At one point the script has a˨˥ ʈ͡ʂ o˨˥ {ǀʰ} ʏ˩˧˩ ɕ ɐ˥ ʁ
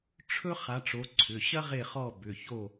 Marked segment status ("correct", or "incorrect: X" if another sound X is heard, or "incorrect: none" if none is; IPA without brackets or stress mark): correct